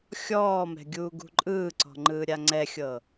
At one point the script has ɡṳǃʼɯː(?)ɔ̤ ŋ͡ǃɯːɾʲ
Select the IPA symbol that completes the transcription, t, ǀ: ǀ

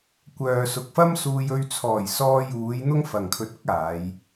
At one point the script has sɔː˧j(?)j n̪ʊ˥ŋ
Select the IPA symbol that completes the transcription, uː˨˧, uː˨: uː˨˧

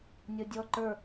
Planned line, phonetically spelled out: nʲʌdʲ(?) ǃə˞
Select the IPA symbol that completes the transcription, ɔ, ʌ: ɔ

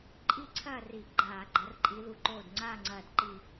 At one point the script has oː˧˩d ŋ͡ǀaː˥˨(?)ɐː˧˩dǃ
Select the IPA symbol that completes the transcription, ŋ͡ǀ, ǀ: ŋ͡ǀ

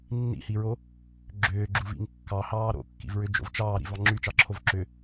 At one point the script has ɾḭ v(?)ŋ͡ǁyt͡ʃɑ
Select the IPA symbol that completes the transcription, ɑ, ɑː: ɑ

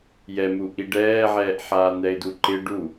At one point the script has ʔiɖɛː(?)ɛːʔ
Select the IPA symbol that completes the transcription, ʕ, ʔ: ʕ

